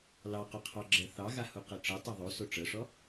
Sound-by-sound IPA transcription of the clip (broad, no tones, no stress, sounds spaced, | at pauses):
l ɑ q o qʰ ɑ ɡ͡ǁ ɜ θ ɑ ɣ a h u q ɤ ʈ͡ʂ ɤ tˤ ɤ ðˤ o s o ʈ͡ʂ ɤ ʂ ɔ